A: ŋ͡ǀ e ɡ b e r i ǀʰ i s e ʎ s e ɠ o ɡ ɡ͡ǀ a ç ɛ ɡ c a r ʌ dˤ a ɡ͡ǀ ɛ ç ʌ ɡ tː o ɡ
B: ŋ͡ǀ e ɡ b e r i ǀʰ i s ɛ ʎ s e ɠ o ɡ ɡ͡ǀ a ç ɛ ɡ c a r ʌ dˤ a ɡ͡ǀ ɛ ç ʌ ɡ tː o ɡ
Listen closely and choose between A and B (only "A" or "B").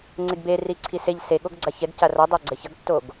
A